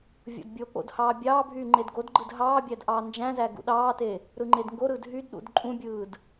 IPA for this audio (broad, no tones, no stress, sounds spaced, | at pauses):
vʲ o̰ d bʲ o k͡p o̰ d h ɑː bʲ ɑː bʱ yː ŋ͡ǃ e d ɡ o d ɡ͡ǃ ɯ d ɦ ɑː bʲ æ d ʔ ɑː n d͡ʒ æ̃ z æ ɡ ṵ ɗ ɑː t e | ɾ ɯ ŋ͡ǃ e d ŋ ɡ o ɾ ɯː d ɦ y d ɗ ṵ d ǃʼ ũ bʲ ɯː d